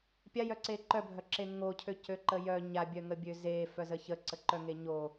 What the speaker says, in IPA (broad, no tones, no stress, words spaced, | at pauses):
pʲajœǀe ǃœbʱœǁe ŋocʰøcøǃə jœ ɲabʲœŋəbʲø zefœzə çəǀəǃœŋe ɲo